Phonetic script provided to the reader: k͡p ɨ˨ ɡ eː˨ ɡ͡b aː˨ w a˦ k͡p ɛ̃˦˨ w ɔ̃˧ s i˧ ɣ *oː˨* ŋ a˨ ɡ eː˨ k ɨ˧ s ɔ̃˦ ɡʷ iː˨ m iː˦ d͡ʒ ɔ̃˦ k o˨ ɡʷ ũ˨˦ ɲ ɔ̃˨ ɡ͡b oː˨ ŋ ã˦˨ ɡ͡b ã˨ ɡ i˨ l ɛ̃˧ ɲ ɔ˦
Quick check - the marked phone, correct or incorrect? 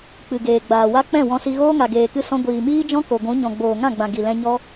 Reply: incorrect